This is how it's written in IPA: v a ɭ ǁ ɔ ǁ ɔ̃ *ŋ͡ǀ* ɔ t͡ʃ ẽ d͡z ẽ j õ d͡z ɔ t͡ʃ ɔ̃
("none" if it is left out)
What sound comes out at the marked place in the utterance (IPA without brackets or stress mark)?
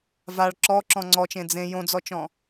ŋ͡ǀ